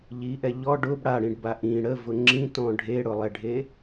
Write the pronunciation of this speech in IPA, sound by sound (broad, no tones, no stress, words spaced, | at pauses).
ʎiʔɛ ʎɔ ɖʊb ɽaɽĩɖba ʔĩ ɽəvʊ ŋ͡ǁĩtɔ̃ ɖʱeɽʊlˠɛɖʱe